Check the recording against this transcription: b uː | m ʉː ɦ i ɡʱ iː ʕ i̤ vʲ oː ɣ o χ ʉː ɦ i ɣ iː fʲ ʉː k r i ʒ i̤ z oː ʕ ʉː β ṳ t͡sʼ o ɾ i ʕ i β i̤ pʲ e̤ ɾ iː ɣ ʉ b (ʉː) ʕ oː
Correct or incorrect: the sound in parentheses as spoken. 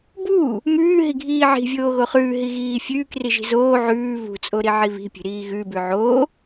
incorrect: ʉ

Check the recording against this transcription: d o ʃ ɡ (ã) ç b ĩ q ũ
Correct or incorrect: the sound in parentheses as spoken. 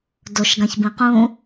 correct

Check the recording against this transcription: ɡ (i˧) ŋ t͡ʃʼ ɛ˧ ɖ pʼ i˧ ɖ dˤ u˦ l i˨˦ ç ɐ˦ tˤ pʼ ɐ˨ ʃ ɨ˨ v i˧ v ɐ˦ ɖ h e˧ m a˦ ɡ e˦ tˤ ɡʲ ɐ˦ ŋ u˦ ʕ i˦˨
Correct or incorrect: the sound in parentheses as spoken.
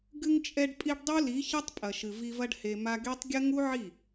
incorrect: ɨ˧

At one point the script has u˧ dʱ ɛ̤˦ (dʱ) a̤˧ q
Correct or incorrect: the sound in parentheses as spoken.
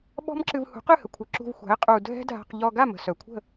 correct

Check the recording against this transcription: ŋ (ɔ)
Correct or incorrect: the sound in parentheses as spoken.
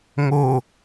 incorrect: o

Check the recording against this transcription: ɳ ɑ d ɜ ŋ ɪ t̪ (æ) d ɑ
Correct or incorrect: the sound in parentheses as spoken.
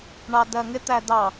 correct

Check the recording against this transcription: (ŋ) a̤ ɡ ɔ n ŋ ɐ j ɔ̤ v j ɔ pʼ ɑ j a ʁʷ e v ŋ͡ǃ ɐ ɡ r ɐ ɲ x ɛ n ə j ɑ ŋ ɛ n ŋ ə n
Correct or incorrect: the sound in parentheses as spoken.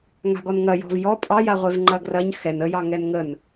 correct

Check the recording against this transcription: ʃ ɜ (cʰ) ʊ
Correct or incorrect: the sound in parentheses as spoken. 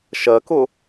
incorrect: k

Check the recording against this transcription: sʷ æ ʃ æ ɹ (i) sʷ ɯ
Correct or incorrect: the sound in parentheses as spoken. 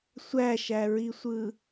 correct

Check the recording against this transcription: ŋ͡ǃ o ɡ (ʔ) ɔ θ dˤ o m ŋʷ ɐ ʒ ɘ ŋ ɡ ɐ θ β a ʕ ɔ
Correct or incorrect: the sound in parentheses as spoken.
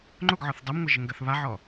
incorrect: ʕ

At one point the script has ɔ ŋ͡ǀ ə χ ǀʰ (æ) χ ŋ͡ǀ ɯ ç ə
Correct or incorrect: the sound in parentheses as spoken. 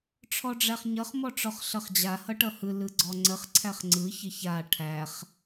correct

